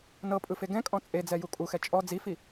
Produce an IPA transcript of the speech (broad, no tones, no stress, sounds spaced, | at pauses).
n ɤ pʼ ɯ f e ɡ ɛ̃ kʼ ɔ̃ t͡sʼ e d͡z ɛ j u kʼ u x ɛ t͡ʃʼ ɔ d͡z i f i